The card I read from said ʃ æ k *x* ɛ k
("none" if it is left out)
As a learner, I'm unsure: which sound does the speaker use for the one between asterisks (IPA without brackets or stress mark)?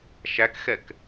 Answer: x